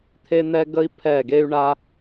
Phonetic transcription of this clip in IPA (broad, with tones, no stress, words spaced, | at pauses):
t̪ʰe˥n̪ɛ˥ ɡə˥i̯ pʰɛ˥˩ɡe˥y̯ɳa˥